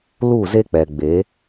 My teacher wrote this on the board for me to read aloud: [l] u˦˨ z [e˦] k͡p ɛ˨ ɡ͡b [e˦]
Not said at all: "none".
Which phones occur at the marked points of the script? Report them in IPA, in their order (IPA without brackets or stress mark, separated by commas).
l, e˦, e˨˦